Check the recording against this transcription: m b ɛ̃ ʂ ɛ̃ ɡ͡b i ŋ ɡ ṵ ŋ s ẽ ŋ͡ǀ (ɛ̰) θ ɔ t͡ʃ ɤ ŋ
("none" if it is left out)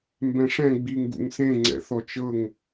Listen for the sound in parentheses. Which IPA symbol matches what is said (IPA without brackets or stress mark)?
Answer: ɛ̰